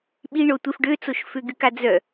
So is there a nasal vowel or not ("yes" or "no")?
no